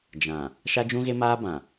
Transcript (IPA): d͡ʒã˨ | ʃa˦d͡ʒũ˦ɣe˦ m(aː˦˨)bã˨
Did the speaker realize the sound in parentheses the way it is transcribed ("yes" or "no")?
no